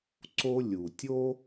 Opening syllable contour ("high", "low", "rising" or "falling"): high